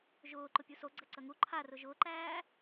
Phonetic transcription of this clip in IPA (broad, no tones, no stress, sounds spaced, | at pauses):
ʒ ʊː ǃ ʊ pʲ u s o ɡ͡ǀ ɐ ǀ ɐ ŋ u ǃʰ a r ʊ ʒ ʊː ǃ æː